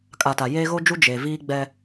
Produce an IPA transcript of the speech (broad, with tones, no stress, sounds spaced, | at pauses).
kʼ a˨ t a˨ j eː˦ ɣ o˦ d͡ʒ u˦ d͡ʒ e˨ v iː˦ ɡ͡b ɛ˦